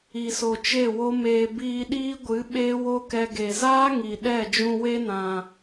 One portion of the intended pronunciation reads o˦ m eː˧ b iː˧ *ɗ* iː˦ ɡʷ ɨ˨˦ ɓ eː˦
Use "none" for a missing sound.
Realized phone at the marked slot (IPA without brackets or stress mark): ɗ